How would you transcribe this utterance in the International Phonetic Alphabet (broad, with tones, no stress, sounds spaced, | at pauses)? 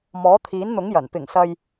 m ɔː˨˥ t̪ʰ iː˨˥ n n̪ ʊ˨˥ ŋ j ɐ˨˩ n p ɪ˨˩ ŋ s ɐ˨ j